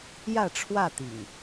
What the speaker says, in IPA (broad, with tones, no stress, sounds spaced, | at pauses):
j ä˥˨ ʈ͡ʂʰ w ä˥˨ t̪ ḭ˨˩ ŋ